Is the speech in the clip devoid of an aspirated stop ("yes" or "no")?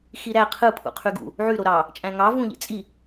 no